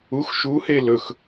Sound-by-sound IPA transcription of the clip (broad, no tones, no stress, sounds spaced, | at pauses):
u x ʃ u h e l ɵ x